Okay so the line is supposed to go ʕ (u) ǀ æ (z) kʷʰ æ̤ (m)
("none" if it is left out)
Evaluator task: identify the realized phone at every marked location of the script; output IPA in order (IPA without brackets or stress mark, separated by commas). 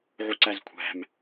u, z, m